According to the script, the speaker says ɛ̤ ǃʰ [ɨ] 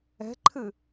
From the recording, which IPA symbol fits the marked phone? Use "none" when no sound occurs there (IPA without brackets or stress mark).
ɨ